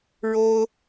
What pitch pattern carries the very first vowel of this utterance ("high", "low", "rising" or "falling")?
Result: high